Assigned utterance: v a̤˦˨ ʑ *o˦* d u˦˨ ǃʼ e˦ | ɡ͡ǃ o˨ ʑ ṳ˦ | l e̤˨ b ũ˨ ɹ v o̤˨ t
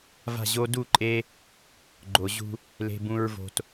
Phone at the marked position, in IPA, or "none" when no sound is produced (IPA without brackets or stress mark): o˦